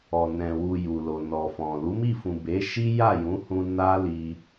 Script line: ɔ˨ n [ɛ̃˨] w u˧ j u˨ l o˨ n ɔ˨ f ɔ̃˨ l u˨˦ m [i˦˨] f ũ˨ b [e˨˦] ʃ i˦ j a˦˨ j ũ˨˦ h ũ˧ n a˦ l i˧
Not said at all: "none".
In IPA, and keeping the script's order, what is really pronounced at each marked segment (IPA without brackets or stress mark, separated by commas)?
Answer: ɛ̃˨, i˦˨, e˨˦